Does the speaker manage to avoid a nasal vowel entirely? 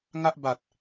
yes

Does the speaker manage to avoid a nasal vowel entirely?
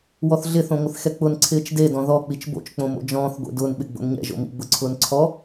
no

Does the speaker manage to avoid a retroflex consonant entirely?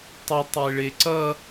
no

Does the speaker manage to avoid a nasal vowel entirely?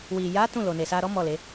no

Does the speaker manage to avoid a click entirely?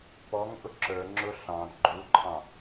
no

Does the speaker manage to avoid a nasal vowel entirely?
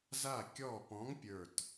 no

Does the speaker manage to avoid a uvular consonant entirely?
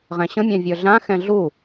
no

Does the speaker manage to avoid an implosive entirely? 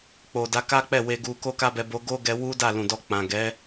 yes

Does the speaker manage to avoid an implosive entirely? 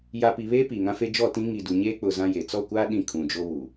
no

